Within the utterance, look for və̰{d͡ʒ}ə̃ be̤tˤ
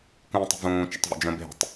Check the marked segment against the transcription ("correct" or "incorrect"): correct